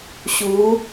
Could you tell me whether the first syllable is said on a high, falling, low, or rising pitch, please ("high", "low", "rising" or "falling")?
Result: rising